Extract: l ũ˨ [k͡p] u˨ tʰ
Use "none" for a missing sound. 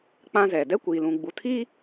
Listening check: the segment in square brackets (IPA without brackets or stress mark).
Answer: ɡ͡b